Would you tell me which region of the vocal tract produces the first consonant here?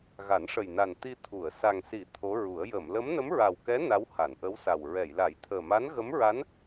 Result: velum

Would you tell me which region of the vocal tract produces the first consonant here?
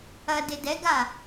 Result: tongue tip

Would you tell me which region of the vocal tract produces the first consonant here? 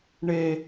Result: retroflex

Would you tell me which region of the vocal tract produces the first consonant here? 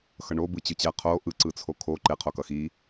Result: velum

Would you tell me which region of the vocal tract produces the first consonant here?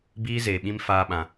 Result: lips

